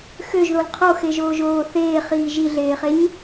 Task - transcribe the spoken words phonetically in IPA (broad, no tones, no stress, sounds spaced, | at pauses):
x ø ʒ ð o l qʰ o x e ʒ oː ʒ oː θ eː χ iː ʒ i ɮ eː χ e ɲ